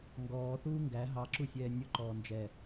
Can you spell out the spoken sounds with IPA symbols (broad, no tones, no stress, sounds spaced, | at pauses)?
ŋ ɡ ɔː θ uː ŋ ɡ æ ɦ ɑ ǁ u sʲ ɛː nʲ ʊ ǃ ɔː n d͡ʒ ɛ